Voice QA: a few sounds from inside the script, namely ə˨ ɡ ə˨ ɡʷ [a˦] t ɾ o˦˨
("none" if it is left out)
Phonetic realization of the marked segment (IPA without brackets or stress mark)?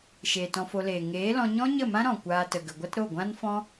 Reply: a˦